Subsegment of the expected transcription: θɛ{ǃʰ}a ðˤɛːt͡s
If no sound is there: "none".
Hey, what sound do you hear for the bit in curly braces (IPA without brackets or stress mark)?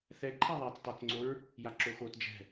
ǃʰ